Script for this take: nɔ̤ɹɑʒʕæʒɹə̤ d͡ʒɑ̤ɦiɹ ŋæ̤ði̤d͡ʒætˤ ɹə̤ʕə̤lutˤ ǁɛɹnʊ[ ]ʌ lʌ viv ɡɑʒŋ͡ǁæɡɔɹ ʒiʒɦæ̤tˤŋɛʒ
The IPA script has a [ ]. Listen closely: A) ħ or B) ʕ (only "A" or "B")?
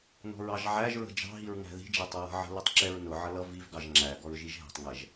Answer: B